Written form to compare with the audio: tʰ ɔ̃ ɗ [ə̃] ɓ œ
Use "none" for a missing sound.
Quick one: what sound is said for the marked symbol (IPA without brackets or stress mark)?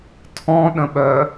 ə̃